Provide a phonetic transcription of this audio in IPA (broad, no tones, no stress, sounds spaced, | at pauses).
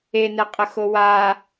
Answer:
e n ɛ qʼ ə x o w a